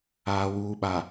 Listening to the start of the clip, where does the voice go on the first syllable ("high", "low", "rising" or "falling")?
low